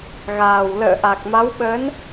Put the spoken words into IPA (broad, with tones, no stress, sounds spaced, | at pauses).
ɣ aː˨˩ w l ə̰ː˧˨ ʔ a˨˩ k̚ m a˨˦ w ɓ ə˨˦ n